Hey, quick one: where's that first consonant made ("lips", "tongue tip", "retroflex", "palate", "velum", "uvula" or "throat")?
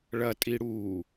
retroflex